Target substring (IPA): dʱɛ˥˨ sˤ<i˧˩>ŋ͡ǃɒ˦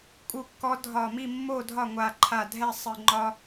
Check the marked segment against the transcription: incorrect: ɨ˧˩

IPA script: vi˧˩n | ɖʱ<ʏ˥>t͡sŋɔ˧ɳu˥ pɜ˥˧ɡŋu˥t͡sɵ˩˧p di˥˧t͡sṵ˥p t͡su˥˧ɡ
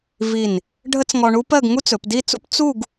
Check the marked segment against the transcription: incorrect: ə˥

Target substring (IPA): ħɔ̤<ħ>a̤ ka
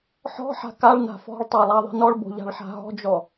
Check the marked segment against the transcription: correct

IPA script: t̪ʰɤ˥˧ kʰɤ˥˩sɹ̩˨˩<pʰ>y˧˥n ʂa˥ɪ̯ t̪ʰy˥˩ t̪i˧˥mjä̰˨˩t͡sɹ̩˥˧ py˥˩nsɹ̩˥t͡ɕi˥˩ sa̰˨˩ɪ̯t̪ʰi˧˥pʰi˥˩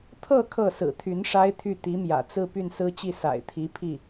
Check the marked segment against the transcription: incorrect: t̪ʰ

